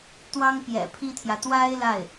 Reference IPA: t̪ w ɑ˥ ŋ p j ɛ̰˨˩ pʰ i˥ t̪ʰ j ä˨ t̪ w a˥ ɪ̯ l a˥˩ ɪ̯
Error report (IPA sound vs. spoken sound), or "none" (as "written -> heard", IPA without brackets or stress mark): none